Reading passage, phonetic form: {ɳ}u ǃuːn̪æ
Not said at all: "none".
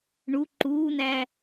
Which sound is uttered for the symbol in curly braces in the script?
ɳ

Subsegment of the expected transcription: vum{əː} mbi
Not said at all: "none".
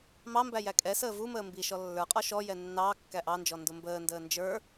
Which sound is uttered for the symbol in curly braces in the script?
əː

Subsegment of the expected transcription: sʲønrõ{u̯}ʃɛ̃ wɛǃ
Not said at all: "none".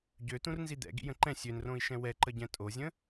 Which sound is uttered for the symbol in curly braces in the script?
i̯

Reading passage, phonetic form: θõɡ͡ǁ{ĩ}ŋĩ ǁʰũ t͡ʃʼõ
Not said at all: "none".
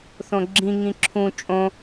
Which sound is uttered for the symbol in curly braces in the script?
ĩ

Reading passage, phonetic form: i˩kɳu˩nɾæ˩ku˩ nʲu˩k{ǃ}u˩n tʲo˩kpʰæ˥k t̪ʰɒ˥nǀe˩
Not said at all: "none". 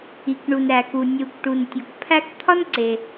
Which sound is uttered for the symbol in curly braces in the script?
ʈ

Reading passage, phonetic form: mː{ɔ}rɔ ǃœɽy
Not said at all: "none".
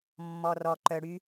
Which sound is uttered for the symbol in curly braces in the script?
ɔ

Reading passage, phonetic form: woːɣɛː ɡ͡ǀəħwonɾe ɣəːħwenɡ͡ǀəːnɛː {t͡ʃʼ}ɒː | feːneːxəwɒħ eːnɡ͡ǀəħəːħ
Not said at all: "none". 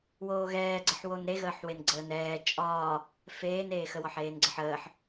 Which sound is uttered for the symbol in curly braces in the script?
t͡ʃʼ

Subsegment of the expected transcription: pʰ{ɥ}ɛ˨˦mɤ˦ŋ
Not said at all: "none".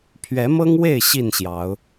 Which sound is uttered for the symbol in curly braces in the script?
ɥ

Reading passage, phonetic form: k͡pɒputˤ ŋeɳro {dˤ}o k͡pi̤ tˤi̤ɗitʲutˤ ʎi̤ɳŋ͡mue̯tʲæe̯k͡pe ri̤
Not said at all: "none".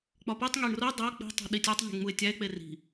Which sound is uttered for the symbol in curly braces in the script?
dˤ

